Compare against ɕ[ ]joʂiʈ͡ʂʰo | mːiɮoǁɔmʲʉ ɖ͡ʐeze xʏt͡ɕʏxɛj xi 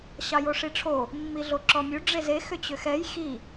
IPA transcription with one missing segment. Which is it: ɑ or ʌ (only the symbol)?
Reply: ɑ